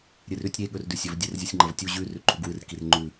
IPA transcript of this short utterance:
ɾʲ ɨ r ʉ tʲ ɾʲ e ɠ ɵ r d ʉ sʲ ɵ v dʲ e r zʲ u sʲ ŋ͡ǃ ɐ v tʲ u ʑ ʉ r ʉ ǃʼ u ɡ w ɨ r k i r ŋ͡ǃ ʉ

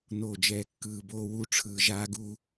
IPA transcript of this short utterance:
n oː˨ d͡ʒ ɛː˨˦ kː ɯː˨ b oː˦ w u˦ ʈ͡ʂʰ ɯː˨ ʒ aː˦ ɡ uː˦

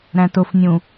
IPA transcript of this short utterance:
ɾ æ̃ t ʊ f nʲ ũ

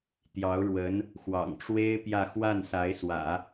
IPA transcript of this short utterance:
t̪ j ɑ˧˥ ʊ̯ ɻ w ə˧˥ n | x w ɑ̰˨˩ ŋ ʈ͡ʂ w e˥ ɪ̯ p j ä˥˧ x w a˥˩ n s a˧˥ ɪ̯ s w ä̰˨˩˦

